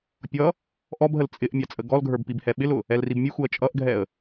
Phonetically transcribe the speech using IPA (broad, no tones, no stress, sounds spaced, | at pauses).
pʲ ʌ | ʔ ɔ b ɦ ə l t͡sʼ ɪ ʔ mʲ ɑ t͡sʼ ə ɡ ɔ l ɡʱ ə˞ b p i b h ɛ ɓ ɪ l ʊ | ɛ l r i b mʲ u x u ə̯ t͡ʃʼ ʌ ʔ ɡʱ ɛ ə̯